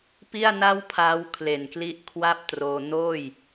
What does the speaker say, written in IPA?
p i˥˩ a̯ n a˥˩ w pʰ aː˦˥ w kʰ l e˨˩ n k l i˦˥ ʔ kʰ w a˥˩ p̚ t r oː˧ n oː˥˩ j

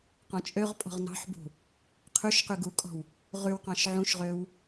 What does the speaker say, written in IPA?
q ɔ̃ t͡ʃʼ ø ʁ pʼ ɔ̤ ʁ n ɑ̤ ħ b ṳ | qʰ ʉ ʃ q ʉ ɡ u kʼ ɔ̤ w | ʁ ʉ w q ɑ̃ ʃ ʕ ũ ʃ ʁ ø w

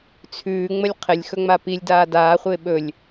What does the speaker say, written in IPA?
t͡sʰ ʉː ŋ͡m ə lʲ qʰ ɪ lʲ x ɵ ŋ͡m a p i lʲ d aː d aː χʷ ɪː ɓ ɵ lʲ

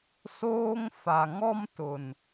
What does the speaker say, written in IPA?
s oː˦ ŋ f a˨ ŋ ɔ˦ m t ʊ˨ n

